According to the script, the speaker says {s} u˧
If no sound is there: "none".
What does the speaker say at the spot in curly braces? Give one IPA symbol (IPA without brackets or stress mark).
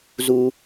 z